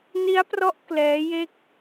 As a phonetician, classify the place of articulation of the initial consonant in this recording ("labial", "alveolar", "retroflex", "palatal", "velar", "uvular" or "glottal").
alveolar